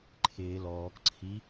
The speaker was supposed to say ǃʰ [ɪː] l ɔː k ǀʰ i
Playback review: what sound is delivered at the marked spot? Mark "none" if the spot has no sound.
ɪː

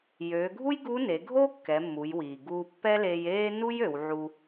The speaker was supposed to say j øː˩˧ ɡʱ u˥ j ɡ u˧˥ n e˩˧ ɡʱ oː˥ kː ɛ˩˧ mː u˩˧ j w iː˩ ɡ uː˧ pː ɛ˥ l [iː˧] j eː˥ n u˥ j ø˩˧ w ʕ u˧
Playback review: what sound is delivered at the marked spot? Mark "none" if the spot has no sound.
eː˧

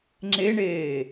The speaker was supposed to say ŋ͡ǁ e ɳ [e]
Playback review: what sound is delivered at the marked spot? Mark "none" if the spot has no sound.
eː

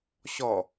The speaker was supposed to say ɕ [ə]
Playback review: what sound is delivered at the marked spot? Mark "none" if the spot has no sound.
ɔ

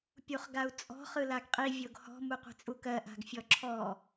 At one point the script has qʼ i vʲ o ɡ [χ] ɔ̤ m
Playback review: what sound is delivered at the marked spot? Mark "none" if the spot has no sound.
h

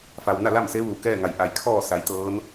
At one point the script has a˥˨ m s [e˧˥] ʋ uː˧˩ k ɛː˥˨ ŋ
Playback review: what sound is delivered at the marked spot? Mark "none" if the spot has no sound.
e˧˥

